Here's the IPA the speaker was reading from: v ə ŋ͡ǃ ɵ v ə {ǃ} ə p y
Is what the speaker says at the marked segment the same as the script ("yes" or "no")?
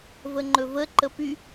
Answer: yes